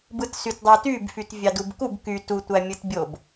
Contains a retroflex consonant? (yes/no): no